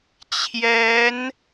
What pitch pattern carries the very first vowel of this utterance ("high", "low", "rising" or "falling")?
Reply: rising